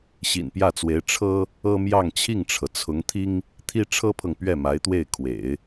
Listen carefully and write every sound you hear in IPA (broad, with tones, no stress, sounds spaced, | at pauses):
ɕ ḭ˨˩ n p j ä˥˩ t͡s w e˧˥ ɪ̯ ʈ͡ʂʰ ɤ˥ | ɤ˥ m j ɑ˥˧ ŋ t͡ɕʰ i˥˩ ŋ ʈ͡ʂʰ ɤ˩ t͡sʰ ʊ˧˥ ŋ t̪ʰ i˥ ŋ | t̪ʰ i˥ ʈ͡ʂʰ ɤ˥ pʰ ɤ˨ ŋ p ɥ ɛ˥˩ m a˧˥ ɪ̯ t̪ w e˥˩ ɪ̯ kʰ w ḛ˨˩˦ ɪ̯